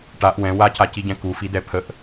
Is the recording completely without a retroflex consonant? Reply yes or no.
no